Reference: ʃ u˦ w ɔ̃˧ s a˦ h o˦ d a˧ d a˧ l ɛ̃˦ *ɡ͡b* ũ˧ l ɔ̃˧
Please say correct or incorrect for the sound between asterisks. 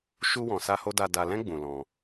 correct